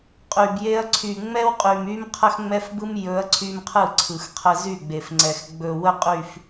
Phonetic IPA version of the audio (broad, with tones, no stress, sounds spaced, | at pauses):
qʼ y˨ b j e˦ ɐ̯ ǀʰ y˨ ŋ͡m ɛ˦ w qʼ y˨ m y˦ m qʰ ə˦ x ŋ͡m ɛ˦ f b ɯ˦ m j ɵ˨˦ ɐ̯ ǀʰ y˦ m qʰ ɯ˦˨ ǀʰ ɯ˨ x qʰ ə˦ z y˦˨ ɡ͡b e˨ f ŋ͡ǀ ɛ˨ x ɡ͡b ɵ˨ w ə˦ qʼ y˨ f